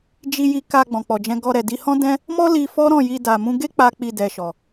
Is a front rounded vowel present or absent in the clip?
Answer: absent